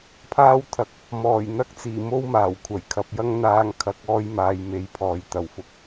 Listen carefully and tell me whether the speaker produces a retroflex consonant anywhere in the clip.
no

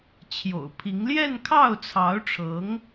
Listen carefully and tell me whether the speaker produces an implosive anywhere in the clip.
no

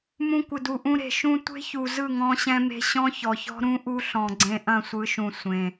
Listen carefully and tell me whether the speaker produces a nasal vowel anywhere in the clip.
yes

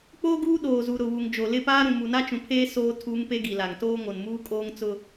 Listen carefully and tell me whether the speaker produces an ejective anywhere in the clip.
yes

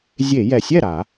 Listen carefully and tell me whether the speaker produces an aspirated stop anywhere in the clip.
no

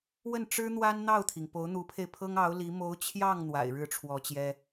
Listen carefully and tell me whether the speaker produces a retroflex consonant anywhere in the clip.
yes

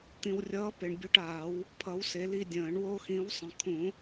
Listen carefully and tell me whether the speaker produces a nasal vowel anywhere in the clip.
yes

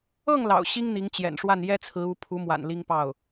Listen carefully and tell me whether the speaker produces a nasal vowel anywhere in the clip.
no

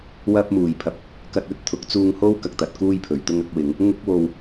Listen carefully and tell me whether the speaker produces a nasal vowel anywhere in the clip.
no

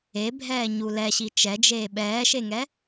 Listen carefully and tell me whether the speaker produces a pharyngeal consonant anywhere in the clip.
no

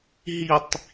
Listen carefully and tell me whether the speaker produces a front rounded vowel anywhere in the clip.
no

